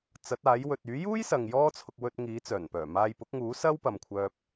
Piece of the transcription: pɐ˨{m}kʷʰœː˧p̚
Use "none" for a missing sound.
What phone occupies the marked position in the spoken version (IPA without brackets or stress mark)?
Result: m